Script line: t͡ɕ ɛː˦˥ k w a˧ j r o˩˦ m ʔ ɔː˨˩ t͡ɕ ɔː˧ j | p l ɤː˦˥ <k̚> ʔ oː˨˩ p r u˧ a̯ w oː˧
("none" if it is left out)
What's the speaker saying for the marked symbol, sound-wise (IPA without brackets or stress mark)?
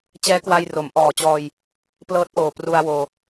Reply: t̚